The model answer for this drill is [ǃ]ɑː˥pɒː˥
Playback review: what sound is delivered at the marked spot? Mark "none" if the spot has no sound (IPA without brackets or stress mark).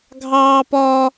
ɡʱ